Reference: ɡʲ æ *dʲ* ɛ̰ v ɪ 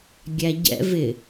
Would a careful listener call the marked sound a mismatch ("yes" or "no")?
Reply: yes